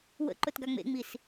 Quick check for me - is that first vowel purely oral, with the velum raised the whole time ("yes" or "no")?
yes